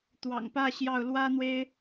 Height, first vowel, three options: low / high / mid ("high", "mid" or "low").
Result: low